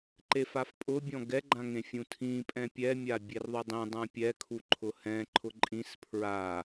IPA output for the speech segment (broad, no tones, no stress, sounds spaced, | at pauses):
ǃ e f a f pʼ ʊ bʲ ɔ̃ ɡ ɛ ɡ͡ǃ ã ŋ ẽ fʲ ũ tʰ ĩ pʼ ɛ̃ pʲ ɛ mʲ a bʲ e r ðˤ ʊ dˤ ẽ dˤ ã pʲ ɛ kʰ u ǃʰ ʊ h ɛ̃ ǃʰ ʊ ǃʼ ĩ s pʰ ɹ a